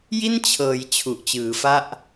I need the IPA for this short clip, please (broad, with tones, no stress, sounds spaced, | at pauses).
j i˥˩ n t͡ɕʰ ɤː˩˦ j t͡ɕʰ u˨˩ ʔ t͡ɕ ɯː˩˦ f a˥˩ ʔ